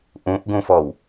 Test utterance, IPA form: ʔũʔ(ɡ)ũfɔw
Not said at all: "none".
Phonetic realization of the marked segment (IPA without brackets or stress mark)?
ɡ